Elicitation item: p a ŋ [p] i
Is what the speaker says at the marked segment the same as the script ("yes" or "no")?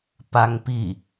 yes